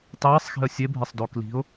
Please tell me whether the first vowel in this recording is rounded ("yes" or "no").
no